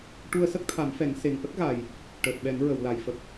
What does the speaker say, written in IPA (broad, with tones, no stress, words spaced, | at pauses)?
ʈu˧ə̯sə˦˥k̚t̪ʰa˨˩˦mfɛ˨˩˦ŋ se˨˩ŋ ʔə˦˥k̚ɣa˨˩j | ʈəː˨˩t̚ɓɛ˨˩˦ŋ ɹə˨˩˨w la˨˩˨jfə˨˩k̚